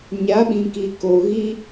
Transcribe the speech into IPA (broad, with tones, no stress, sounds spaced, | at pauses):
ɲ a˨˦ ɓ ĩ˨ k i˨ k o˨ ɣ i˦